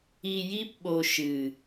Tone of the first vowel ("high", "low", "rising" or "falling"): low